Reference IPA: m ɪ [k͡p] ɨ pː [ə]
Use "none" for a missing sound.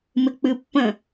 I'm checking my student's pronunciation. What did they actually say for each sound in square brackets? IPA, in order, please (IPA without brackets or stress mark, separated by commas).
k͡p, ə̃